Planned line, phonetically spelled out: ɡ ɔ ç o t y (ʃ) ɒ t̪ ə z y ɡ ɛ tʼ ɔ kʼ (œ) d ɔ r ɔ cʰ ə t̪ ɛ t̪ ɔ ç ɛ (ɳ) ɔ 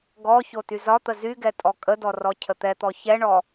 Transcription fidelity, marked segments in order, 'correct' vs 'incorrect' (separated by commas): incorrect, incorrect, correct